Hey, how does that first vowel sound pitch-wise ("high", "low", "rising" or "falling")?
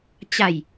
low